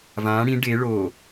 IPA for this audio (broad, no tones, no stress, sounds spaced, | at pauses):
v ã ɽ ĩ ɖ e ɭ o